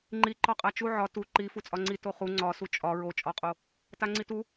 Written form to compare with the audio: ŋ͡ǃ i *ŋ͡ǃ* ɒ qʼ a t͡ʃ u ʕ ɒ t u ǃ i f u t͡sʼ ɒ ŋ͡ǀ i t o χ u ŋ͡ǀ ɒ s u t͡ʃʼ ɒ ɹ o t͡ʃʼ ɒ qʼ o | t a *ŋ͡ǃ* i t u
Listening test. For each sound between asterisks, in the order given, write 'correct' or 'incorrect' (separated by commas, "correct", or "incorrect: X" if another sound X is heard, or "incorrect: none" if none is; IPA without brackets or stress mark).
incorrect: ǃ, incorrect: ŋ͡ǀ